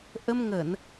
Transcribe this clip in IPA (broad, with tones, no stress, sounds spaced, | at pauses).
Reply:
ʔ ə˧ m ŋ ə˧˩˨ n